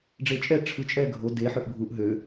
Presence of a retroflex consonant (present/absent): present